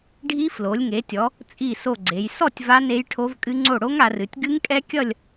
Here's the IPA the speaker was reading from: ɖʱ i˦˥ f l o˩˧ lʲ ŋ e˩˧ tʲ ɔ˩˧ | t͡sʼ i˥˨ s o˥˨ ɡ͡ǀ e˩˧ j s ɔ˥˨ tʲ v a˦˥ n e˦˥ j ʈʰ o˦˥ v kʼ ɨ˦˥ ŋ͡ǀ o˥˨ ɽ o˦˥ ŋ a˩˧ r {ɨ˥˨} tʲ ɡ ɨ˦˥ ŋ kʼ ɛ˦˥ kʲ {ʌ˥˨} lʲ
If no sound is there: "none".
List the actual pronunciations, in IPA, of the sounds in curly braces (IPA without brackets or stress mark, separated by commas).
ɨ˩˧, ʌ˥˨